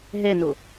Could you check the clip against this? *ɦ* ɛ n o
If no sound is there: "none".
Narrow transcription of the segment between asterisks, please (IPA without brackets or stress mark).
ɦ